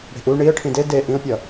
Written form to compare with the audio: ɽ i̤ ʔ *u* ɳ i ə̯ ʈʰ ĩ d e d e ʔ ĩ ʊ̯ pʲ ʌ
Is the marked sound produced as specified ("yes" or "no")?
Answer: yes